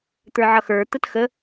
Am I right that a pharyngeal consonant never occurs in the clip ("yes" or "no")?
no